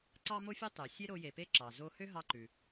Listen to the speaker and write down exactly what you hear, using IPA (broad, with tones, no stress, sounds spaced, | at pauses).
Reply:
ǀ ɑ˥ m o˥ fʲ ɔ˥ tˤ ø˩ sʲ e˧ ɾ o˧ j e˩ p e˥ ǁ ɑ˩ z o˧ h ø˥ ɦ ɑ˧ ǃ ʉ˩